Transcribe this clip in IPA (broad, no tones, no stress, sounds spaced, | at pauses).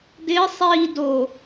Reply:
d ɪː sˤ iː d o